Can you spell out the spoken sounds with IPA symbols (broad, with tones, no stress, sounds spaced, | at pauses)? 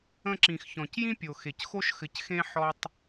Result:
ə̃˧ ǁ ĩ˨ x ç ɔ̃˨ c j ĩ˦ pʲ o˨ x e˨ c x o˦ ʃ x ɘ˧ c x ẽ˦ ħ ɔ˦ tˤ